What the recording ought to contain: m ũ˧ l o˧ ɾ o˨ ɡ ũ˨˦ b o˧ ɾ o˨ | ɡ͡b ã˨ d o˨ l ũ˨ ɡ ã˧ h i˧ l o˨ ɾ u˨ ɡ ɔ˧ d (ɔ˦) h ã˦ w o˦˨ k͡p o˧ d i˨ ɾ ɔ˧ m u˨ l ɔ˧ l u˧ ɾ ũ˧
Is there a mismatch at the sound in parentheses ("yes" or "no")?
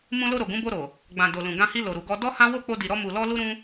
no